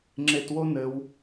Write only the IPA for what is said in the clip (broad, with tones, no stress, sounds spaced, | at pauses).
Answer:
ŋ͡ǁ e˨ t w o˦ n ɘ˧ w